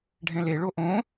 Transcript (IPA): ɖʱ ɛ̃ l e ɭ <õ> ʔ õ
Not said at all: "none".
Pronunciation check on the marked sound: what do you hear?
o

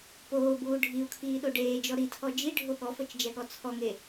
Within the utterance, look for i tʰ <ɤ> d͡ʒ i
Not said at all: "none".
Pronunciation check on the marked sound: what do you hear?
ɔ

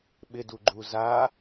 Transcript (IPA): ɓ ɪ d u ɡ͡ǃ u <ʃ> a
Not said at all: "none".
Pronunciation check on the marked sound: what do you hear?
z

